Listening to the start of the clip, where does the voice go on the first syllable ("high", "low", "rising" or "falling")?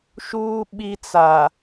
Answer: high